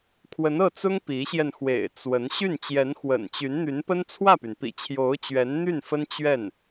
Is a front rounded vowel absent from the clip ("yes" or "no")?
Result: no